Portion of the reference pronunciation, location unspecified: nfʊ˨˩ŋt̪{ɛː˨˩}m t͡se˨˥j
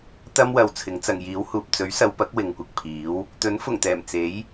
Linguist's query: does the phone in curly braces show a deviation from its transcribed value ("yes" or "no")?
no